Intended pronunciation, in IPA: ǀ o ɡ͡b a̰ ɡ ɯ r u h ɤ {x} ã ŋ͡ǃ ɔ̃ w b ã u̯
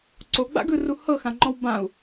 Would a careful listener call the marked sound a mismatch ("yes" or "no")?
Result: no